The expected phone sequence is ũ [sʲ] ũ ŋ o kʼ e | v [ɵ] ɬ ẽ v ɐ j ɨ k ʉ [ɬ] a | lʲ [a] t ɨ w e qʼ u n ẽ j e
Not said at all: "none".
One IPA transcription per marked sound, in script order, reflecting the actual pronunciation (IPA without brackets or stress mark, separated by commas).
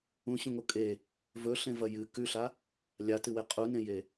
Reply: ɕ, ɵ, ɬ, a